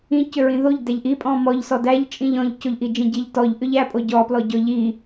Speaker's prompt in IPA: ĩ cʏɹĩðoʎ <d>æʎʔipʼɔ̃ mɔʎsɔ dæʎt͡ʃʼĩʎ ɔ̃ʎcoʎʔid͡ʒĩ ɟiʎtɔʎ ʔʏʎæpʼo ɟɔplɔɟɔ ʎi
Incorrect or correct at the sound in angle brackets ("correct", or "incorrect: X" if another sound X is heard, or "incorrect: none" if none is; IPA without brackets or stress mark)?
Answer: correct